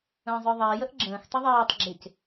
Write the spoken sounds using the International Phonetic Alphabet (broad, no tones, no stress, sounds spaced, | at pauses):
ə̃ː zˤ ə˞ ðˤ ɪː j ə ʔ ɡ͡ǁ ə̃ː x tˤ ɪ ðˤ iː tˤ ɡ͡ǁ ɪ c